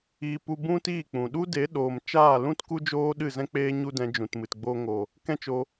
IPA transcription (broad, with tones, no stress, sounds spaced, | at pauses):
iː˧ p u˧ b ũ˦ t iː˦˨ k͡p ũ˨ ɗ u˦ d e˨˦ ɗ oː˨ m t͡ʃ aː˦˨ l ũ˦ t k u˦ d͡ʒ oː˦ ɗ ɨ˦˨ z ɛ̃˦ k͡p eː˦ ɲ u˦ d ɛ̃˧ d͡ʒ ũ˨ t m ɨ˨ t ɡ͡b oː˧ ŋ o˨ | k ɛ̃˦ t͡ʃ o˧